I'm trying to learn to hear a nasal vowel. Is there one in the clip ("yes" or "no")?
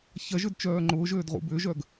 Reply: no